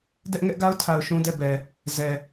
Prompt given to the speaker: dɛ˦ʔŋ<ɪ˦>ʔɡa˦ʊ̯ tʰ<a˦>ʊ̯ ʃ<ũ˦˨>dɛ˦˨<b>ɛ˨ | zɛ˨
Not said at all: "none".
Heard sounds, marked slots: ɛ˦, a˨, ũ˦, b

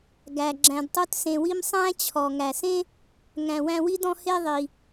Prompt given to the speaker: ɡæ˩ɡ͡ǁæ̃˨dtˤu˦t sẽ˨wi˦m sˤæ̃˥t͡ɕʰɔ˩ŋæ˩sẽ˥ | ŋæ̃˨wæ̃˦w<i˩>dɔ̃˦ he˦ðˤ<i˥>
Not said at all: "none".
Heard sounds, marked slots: i˥, i˩

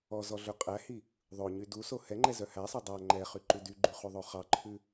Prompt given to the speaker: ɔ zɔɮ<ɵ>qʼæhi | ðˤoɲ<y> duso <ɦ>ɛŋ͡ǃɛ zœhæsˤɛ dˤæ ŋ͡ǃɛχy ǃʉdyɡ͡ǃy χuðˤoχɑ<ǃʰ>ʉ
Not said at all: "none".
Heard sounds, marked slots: ɵ, y, h, ǃʰ

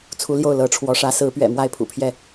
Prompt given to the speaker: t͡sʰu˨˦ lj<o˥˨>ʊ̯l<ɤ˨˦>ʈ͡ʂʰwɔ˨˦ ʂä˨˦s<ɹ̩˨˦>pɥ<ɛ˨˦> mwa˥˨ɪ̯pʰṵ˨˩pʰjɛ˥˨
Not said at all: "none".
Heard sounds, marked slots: o˥˨, ɤ˨˦, ɹ̩˨˦, ɛ̰˨˩

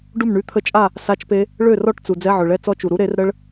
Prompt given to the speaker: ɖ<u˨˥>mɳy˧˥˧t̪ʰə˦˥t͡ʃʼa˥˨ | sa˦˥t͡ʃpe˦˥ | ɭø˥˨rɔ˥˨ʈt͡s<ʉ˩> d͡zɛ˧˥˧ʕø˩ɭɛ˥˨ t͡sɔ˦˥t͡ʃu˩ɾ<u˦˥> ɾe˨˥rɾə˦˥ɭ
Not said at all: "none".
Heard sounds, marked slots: u˥˨, u˩, u˦˥

